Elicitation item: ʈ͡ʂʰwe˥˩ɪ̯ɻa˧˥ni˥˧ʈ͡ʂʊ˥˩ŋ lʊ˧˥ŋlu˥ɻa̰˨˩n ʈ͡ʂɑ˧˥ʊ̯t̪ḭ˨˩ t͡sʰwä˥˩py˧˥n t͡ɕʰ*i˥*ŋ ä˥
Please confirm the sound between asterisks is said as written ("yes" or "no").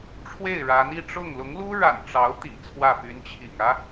no